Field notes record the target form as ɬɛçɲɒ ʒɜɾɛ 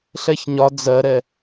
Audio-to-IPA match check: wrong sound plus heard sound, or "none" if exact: ʒ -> d͡z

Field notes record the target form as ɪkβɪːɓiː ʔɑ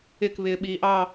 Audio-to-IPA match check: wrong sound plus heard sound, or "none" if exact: none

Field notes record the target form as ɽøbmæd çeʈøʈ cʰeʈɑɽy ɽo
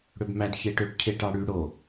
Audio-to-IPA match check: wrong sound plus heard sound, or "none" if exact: none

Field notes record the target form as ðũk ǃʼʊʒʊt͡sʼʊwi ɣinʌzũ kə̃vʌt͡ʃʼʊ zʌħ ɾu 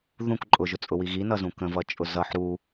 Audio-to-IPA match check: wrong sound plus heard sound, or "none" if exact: none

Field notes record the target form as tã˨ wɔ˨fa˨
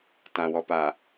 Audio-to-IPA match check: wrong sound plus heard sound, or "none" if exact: f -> p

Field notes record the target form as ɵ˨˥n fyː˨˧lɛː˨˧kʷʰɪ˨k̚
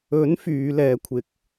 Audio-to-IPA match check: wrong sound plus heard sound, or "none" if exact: none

